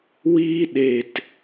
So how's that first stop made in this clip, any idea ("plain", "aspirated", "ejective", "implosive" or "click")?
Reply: implosive